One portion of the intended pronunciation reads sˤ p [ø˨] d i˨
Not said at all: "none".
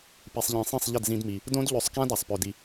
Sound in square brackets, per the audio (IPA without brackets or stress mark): ø˨